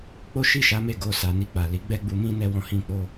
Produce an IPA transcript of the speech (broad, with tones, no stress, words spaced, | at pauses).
k͡po˦ʃi˦˨ʃa˨˦me˦˨ ɡo˧ sa˨ni˧ k͡pa˨li˨˦ ɡ͡bɛ˦ɡ͡bu˧mĩ˦ nɛ˦wɔ̃˦hĩ˦ k͡po˦